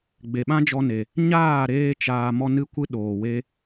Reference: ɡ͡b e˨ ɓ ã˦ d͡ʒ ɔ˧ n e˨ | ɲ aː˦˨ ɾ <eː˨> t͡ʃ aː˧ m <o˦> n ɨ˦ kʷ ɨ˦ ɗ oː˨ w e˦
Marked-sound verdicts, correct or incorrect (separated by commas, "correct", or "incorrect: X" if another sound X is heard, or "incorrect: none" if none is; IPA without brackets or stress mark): incorrect: eː˧, incorrect: ɔ˦